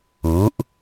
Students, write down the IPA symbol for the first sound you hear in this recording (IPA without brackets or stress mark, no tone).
uː